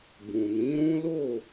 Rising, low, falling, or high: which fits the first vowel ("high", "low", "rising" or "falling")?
low